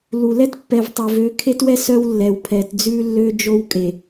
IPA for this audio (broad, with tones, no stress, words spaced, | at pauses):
lu˨ lɛ˦tpːɛ˨v tˤø˨vø˨˦kʰe˦twɛ˦ sœ˦wlːɛ˨w pʰɛ˨td͡zʉ˦lːø˦ d͡ʒo˦wkʼe˨